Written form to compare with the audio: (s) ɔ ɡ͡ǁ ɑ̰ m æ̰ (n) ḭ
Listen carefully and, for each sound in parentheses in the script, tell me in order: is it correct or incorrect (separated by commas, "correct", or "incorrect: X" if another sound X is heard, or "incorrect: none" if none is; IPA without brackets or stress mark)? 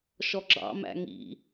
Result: incorrect: ʃ, incorrect: ŋ